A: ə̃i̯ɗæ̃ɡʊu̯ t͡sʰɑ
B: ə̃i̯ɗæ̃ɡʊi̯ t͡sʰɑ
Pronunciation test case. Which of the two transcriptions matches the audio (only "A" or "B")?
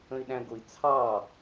B